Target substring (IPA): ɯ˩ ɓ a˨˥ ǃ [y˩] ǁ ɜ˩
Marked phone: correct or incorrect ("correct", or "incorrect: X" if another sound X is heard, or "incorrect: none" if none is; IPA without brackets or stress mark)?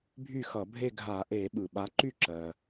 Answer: incorrect: y˥˩